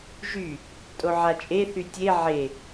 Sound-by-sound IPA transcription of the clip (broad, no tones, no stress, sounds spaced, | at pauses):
ʒ y | tʼ o ʕ a t͡ʃʼ e θ y tʲ e ʕ e